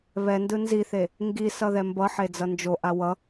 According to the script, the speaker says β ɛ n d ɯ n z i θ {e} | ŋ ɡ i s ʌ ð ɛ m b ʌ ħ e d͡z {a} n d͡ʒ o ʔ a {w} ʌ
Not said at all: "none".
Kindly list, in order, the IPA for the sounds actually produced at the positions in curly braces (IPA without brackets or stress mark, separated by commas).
e, ʌ, w